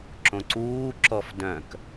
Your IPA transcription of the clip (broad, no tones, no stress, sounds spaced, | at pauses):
ǁ õ ǀ uː ǁ ɔ f d œ̃ k